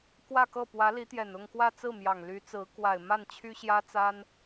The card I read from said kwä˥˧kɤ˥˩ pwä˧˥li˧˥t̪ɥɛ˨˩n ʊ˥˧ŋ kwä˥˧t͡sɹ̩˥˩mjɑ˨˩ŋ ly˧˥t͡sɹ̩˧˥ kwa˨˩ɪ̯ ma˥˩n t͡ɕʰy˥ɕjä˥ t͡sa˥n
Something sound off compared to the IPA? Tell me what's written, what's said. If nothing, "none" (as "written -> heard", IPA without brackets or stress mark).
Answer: ɥ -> j